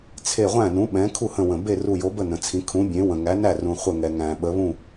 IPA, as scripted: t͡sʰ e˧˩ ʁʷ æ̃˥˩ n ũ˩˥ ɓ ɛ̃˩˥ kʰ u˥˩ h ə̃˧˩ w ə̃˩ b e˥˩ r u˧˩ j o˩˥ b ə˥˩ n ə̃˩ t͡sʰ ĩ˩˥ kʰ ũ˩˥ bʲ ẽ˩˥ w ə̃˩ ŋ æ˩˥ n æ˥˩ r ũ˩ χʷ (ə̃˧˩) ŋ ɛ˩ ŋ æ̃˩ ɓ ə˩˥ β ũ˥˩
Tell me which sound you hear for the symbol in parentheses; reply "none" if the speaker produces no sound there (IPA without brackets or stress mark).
ə˧˩